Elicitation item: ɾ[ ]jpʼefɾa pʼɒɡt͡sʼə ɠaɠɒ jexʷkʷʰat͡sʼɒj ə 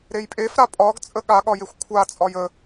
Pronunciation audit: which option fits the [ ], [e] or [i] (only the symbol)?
e